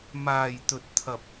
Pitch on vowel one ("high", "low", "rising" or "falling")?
low